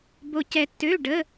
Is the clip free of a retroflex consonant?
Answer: no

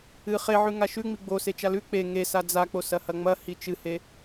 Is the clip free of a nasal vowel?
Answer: yes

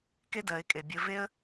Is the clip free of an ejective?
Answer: no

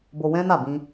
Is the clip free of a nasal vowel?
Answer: no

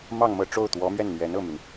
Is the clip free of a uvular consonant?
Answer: yes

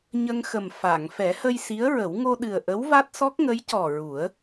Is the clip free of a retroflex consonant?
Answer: yes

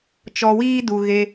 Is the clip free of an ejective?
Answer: yes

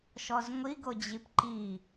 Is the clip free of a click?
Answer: no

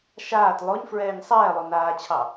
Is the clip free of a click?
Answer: yes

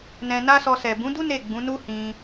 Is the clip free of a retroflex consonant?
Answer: yes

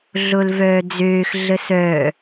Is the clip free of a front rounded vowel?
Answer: no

